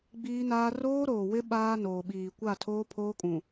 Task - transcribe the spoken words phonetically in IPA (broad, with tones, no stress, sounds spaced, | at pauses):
ɡ͡b iː˦ n aː˦ r oː˦ ɾ oː˨ w ɪ˦ ɓ aː˦ n oː˨ ɓ iː˨ kʷ a˦˨ tʰ oː˦ pʰ oː˦ kʼ ũ˨